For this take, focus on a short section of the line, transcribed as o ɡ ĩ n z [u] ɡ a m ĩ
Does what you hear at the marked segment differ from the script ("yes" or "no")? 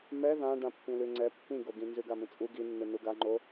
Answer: yes